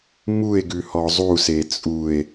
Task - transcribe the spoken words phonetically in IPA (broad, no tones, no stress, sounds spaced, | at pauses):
m u e̯ ɡ ʉ h ɔ zˤ u s e t͡sʼ u e̯